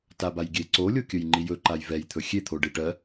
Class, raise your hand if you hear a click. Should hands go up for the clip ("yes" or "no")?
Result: yes